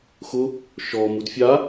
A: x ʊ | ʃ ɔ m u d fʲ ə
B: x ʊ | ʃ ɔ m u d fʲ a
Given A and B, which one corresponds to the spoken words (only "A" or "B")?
B